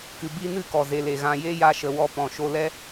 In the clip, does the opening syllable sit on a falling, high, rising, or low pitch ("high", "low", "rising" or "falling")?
low